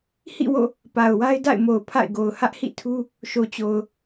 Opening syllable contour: falling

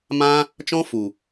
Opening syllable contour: high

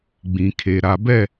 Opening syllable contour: low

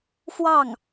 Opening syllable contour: falling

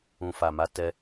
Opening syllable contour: low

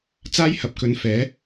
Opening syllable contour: high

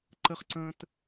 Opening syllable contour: high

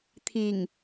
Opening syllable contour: low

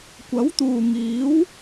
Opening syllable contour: rising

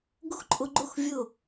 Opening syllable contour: high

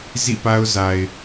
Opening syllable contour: falling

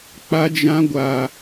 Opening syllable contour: high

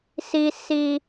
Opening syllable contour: high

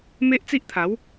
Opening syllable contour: high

